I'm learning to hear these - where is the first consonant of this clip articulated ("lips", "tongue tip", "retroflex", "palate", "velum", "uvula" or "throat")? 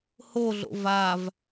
throat